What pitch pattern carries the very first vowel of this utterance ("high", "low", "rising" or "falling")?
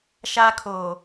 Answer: high